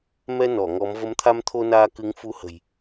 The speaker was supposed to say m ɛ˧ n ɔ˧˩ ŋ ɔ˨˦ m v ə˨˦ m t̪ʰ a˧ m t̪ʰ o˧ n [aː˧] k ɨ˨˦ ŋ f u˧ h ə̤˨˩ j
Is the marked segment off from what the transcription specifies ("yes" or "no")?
no